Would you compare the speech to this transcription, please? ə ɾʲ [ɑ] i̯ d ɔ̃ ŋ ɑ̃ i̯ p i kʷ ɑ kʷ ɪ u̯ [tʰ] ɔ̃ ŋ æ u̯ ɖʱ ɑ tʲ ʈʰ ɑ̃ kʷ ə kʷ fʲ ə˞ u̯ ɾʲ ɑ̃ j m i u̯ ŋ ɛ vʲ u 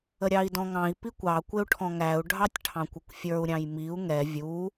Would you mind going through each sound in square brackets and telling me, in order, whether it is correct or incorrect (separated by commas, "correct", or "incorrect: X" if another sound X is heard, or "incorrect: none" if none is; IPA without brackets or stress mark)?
correct, incorrect: ʈʰ